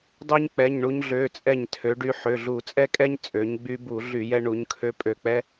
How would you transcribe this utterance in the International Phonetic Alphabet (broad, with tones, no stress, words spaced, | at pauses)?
dˤø˥ɲ k͡pɛ˩˧˩ɲɳu˧ɲɮø˩˧˩t͡sʼɛ˧˩ɲ tʰø˩˧ɖy˧ ħø˩˧˩ɮu˧˩˧t͡sʼɛ˥kʼɛ˥ɲ t͡sʼø˩˧ɲɡ͡by˧bu˧˩˧ ɮy˧˩˧jɛ˧ɳu˩˧ɲkʰø˧ pʼø˧˩k͡pɛ˥